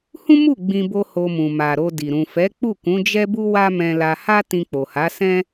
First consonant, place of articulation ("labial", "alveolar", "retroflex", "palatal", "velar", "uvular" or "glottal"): glottal